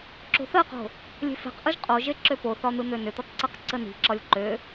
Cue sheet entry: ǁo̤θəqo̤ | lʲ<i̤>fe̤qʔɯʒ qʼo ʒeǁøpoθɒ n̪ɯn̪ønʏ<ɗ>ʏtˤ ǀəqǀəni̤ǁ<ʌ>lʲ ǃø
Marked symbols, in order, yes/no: no, no, no

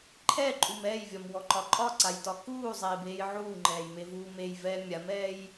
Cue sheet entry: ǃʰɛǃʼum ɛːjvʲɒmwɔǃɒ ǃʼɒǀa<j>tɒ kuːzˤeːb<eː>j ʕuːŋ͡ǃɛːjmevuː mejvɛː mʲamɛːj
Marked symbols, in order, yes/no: yes, yes

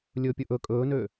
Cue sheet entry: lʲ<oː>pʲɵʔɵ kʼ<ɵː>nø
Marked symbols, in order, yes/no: no, yes

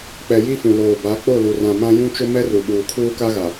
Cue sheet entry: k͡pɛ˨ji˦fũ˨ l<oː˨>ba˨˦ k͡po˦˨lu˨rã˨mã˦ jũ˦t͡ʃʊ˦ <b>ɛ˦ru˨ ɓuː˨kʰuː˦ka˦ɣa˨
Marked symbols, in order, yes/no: yes, no

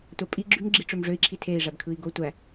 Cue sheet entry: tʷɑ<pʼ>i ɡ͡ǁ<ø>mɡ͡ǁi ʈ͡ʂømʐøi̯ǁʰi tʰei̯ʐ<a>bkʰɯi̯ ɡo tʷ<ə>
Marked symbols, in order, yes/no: yes, no, no, no

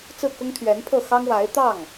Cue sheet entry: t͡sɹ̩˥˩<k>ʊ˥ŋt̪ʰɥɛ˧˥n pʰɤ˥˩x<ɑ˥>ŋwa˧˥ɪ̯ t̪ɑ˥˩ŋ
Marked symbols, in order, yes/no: yes, yes

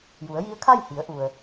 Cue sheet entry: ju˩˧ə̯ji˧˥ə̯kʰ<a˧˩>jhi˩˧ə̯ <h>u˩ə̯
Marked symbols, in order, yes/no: no, no

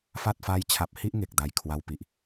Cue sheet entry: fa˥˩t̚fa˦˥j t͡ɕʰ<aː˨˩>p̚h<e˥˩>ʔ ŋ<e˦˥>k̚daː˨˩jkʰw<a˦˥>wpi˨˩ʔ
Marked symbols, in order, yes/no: no, no, no, no

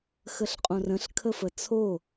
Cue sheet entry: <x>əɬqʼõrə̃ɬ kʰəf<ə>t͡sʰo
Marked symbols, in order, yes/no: yes, yes

